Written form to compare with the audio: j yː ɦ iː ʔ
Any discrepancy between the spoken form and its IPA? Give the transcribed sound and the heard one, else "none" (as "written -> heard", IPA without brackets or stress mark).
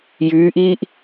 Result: ɦ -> ʔ